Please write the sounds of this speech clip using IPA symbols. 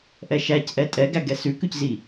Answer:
ʔɛʃæcʔɛ tʼɛɡæɡɛ sʉkʉczi

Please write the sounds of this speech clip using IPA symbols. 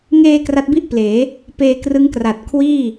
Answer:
ŋeː˧ kra˦˥t̚bi˥˩ʔpleː˩˦ | peː˧krɯ˦˥ŋkra˨˩t̚ kʰwiː˥˩

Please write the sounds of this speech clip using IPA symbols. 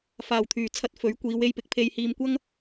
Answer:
faː˨˩wt̪ʰyː˨˩t͡sʰɐ˧t̚ fɵ˨˥ɥ kʷiː˨˧w e˧jpɪ˨˥k̚ pʰe˨jhiː˨mkʷɐ˥ŋ

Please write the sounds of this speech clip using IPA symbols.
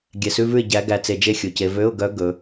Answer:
ɡʲɛ˧˩˧sʉ˧˥˧vʉ˥˨ɪ̯ ɟæ˧˥ ɡæ˧t͡se˧d͡ʒe˥˨ xʲu˧˩˧ce˧˥ vø˧˥˧ʊ̯ɡœ˧˥ ɡɵ˧˥

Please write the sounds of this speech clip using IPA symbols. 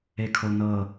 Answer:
ekʰonɤ

